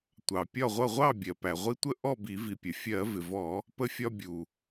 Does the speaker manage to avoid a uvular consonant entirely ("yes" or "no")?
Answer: no